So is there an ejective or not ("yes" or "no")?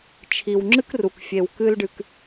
no